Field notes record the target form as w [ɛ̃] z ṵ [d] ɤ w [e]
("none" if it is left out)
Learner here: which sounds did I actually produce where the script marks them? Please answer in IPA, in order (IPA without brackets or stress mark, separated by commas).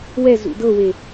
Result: ɛ, d, e